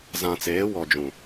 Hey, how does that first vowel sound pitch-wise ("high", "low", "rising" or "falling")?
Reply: low